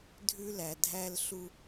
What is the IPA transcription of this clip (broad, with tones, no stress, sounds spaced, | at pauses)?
dʱ ʉ˦ l æ˨ dʱ æ˦ l ɬ u˦